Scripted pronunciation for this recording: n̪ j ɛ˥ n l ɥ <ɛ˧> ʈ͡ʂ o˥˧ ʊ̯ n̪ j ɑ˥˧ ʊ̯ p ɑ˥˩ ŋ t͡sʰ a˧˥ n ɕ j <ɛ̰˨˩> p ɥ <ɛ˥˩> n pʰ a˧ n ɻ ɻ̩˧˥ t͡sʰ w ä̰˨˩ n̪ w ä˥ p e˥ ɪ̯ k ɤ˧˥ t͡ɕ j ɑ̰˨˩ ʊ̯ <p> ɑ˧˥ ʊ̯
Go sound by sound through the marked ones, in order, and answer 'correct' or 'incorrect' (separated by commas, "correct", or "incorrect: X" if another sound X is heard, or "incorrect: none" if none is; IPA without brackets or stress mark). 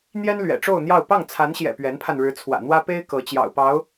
incorrect: ɛ̰˨˩, correct, incorrect: ɛ˧˥, correct